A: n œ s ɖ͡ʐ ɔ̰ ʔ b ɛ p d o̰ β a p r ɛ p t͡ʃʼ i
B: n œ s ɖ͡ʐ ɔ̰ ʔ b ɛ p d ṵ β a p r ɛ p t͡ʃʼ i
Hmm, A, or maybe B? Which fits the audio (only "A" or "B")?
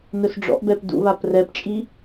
B